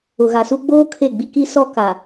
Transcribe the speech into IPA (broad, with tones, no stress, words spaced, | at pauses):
ʊ˨ɣa˨su˦ ɡ͡boː˦ kʰe˦˨ɡ͡bi˦ki˦ sɔ˦ka˨